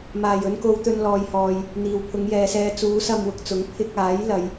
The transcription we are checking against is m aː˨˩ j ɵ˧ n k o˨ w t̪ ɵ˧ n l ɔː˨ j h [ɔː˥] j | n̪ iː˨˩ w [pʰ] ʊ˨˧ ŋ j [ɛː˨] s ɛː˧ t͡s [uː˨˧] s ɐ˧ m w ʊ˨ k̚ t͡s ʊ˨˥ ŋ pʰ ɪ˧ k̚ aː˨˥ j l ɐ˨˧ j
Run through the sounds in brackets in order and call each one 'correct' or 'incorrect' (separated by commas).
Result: incorrect, correct, correct, incorrect